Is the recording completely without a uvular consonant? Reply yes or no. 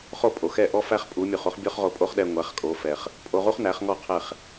no